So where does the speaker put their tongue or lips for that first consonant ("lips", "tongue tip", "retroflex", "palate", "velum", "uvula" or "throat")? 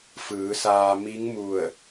lips